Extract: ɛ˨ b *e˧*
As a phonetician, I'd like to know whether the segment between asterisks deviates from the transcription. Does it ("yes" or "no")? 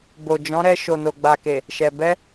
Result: yes